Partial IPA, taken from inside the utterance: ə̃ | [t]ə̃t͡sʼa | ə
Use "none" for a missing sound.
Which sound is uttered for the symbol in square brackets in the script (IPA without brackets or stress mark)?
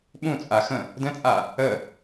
d